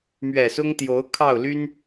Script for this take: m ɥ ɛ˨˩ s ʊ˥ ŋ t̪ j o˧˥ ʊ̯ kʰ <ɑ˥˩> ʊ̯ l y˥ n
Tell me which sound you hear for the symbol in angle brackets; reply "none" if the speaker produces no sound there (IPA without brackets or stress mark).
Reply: ɑ˥˩